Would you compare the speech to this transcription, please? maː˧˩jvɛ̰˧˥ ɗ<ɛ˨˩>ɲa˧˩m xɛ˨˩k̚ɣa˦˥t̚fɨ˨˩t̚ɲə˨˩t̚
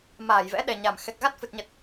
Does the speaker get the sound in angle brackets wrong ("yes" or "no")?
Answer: no